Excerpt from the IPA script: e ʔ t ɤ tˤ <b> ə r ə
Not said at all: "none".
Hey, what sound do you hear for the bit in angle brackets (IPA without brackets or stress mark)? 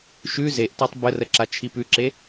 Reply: b